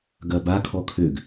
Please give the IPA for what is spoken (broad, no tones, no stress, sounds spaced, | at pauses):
ɡ ɐ b a kʰ ɔ kʰ ø ɡ